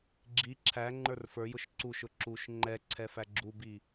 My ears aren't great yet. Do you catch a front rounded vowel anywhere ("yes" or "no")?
no